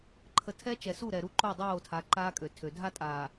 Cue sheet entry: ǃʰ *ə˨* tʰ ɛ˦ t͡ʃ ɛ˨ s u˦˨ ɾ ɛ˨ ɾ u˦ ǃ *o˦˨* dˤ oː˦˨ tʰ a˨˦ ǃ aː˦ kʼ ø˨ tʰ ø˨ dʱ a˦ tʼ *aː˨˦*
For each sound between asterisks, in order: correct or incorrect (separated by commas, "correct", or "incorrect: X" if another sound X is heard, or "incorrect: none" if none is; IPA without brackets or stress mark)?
correct, correct, incorrect: aː˨